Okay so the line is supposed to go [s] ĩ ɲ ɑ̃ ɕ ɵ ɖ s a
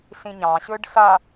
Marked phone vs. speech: correct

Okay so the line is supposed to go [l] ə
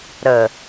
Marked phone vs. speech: incorrect: ɾ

